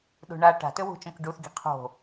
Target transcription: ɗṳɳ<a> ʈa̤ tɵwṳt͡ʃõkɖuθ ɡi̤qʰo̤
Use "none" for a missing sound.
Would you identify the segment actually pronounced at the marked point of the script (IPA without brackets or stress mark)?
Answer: a